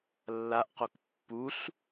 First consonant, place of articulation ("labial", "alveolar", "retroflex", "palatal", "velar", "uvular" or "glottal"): alveolar